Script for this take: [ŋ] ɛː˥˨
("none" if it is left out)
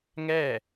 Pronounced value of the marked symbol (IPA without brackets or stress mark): ŋ